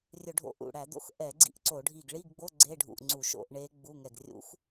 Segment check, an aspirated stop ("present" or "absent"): absent